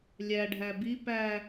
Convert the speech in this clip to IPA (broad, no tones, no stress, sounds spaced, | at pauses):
lʲ æ ɖʱ æ b i p æ